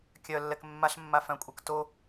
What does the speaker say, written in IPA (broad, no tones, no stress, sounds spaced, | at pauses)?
kʲ œ lː ɛ k mː a ɬ mː a f œ̃ kʷʼ œ k t o